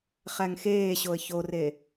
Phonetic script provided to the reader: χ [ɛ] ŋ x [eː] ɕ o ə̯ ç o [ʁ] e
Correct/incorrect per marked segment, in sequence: incorrect: æ, correct, incorrect: r

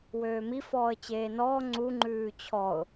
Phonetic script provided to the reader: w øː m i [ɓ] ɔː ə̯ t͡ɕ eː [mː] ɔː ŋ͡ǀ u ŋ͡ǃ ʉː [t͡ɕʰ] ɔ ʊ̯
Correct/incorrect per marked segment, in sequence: incorrect: f, incorrect: n, correct

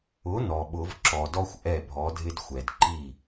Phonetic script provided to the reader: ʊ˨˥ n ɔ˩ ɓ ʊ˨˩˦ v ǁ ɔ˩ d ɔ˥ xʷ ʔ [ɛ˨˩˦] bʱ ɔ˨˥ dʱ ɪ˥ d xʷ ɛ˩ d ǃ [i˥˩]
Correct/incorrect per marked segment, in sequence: incorrect: ɛ˥˩, correct

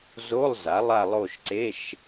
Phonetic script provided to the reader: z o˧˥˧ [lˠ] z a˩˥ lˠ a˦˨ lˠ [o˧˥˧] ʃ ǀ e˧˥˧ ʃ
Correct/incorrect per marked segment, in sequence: correct, incorrect: o˦˨

